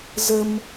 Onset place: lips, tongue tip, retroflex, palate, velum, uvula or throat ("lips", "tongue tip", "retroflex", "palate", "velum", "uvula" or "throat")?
tongue tip